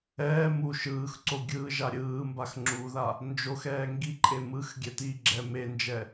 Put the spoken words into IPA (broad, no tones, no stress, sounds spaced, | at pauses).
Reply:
ɛː m u ʃ ɯː x ǀ o ɡʲ ɯː ʒ a ɾʲ ɯː m b a x ŋ͡ǁ u ð a | n d͡ʒ o x ɛː ŋ ɡ i ǃʼ e m ɯ x ɡʲ ɛ t i ɡ͡ǁ ɛ m e n d͡ʒ ɛ